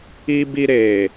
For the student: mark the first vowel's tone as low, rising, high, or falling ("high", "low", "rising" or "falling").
high